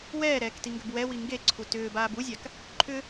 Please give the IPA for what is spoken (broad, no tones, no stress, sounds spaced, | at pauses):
w ɛː ɾ ɛː k t i ŋ ɡ ʏ b w ɛ w i ŋ ɡ e ǀʰ u t ʏː b aː b u zʲ a k | ǃʰ ʏ